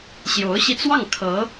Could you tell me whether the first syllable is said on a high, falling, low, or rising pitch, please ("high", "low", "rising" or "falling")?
rising